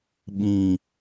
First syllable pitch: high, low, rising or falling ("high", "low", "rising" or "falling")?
low